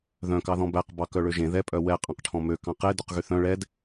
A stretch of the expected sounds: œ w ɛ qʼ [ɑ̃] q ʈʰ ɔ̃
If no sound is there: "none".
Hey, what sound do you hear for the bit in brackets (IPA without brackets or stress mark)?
ɑ̃